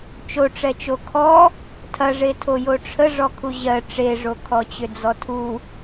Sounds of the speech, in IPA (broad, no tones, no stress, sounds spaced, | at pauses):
t͡ʃ o ʈ͡ʂ ɛ t͡ʃ o kʰ ɔ | tʰ ɐ ʐ e tʰ o j o ʈ͡ʂʰ ə ʐ ɔ kʰ u ʑ ɜ ʈ͡ʂ e ʐ o kʰ ɔ t͡ɕ ʏ d͡z ɔ tʰ u